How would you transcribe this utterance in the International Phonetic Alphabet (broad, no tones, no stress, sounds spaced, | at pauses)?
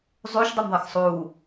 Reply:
zˤ u ʃ dˤ ʉ m ðˤ ɐ x sˤ uː